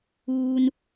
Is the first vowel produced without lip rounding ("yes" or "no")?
no